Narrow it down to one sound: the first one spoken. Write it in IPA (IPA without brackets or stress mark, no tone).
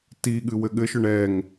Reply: t